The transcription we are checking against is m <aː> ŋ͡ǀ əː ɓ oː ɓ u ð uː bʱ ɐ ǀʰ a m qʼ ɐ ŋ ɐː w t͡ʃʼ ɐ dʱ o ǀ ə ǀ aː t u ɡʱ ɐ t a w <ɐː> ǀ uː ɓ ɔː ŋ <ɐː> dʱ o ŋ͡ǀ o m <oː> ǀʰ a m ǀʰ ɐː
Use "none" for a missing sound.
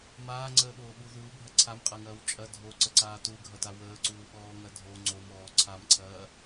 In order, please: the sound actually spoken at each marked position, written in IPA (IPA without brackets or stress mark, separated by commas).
aː, əː, ɐ, ɔː